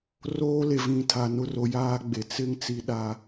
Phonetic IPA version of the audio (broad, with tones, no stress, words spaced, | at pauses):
roː˦le˨vĩ˨ tʰa˨nʊ˦ro˨ jaː˦ɡ͡be˨ t͡sɪ˦ŋ t͡si˦ɗa˦